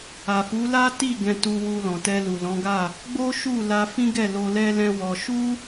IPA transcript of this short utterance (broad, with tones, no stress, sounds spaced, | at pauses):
a˨ f u˨˦ l a˦ t i˦˨ ɡ ɛ̃˧ t u˧ w u˧ l ɔ̃˨ t ɛ˧ l u˨ l ɔ̃˨˦ ɡ a˦˨ | ɡ͡b o˦ ʃ u˦˨ l a˧ f ĩ˦ ɡ ɛ˦˨ l o˧ l ɛ˦ l ɛ̃˦ w ɔ˧ ʃ u˦